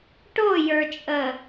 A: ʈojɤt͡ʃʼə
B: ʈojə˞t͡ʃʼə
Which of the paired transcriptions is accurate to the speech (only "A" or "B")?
B